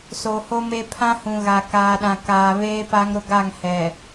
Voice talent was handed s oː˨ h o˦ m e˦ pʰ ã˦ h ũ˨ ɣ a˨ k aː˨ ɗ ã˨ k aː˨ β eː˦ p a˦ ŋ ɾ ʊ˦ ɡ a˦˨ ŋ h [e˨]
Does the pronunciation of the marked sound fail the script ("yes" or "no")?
yes